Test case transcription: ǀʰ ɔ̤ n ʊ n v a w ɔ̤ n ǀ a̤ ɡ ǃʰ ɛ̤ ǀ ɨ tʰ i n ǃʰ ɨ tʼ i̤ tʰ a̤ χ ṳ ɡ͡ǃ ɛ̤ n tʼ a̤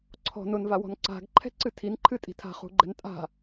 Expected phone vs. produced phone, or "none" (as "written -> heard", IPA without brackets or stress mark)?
none